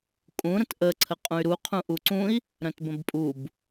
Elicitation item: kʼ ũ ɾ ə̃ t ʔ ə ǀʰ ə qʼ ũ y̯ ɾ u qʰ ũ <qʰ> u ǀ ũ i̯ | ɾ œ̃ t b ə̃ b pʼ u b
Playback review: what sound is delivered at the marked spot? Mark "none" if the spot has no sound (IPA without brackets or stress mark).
ʔ